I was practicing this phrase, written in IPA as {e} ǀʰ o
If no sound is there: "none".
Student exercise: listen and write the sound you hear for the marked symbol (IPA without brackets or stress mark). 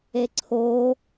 e